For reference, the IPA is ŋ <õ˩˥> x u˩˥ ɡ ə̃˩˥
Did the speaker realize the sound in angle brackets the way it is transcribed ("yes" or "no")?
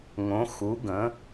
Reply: yes